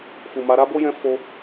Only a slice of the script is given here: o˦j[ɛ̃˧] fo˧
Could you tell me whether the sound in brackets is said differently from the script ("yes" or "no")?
no